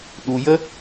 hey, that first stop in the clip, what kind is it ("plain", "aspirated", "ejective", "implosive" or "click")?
implosive